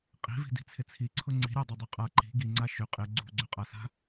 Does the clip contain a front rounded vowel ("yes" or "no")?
yes